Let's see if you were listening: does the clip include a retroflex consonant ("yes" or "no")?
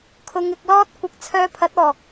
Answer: no